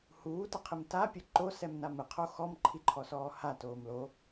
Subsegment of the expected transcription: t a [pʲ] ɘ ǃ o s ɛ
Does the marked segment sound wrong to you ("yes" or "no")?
no